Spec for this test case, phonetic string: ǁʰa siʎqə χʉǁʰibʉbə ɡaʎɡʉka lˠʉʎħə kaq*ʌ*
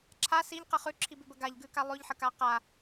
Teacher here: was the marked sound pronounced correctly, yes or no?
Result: no